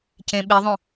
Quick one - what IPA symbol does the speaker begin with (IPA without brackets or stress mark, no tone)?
c